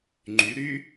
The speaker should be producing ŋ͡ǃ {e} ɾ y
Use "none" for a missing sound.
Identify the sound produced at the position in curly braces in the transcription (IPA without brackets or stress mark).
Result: y